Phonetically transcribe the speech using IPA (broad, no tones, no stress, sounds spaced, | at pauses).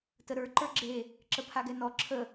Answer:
t ə ɾ ə˞ ǃ ə˞ ɡ͡ǁ e | ǁ ə pʰ a ɡ ɛ n ɔ ǁʰ ə